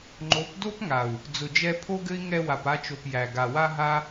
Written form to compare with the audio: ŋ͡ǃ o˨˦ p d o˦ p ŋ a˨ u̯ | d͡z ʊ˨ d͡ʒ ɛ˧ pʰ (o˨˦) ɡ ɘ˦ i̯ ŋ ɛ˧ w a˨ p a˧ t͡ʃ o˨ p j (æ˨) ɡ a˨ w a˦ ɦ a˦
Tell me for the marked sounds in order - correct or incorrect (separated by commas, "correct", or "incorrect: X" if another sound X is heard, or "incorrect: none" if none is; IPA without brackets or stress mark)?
incorrect: o˦, correct